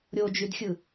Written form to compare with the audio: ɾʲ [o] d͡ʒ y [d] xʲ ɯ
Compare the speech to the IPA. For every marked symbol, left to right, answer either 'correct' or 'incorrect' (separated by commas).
correct, correct